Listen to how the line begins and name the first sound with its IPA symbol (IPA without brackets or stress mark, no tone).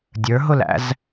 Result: dʲ